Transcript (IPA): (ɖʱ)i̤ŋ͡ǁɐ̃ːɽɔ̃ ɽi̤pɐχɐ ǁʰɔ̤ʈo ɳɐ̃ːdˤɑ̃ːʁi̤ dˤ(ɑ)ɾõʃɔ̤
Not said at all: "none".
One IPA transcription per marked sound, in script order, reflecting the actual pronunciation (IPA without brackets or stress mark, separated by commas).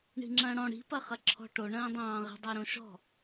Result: ɳ, ɑ